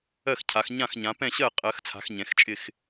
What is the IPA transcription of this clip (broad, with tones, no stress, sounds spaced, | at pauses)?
ɜ˥˨ x cʰ a˨˦ x ɲ ã˥˨ x ɲ ã˨˦ p ɛ̃˥˨ ɕ ɜ˥˨ qʼ ɜ˨˦ x t͡sʰ a̤˨˦ x ɲ ɛ̃˨˦ x t͡ʃʼ ɪ˥˨ x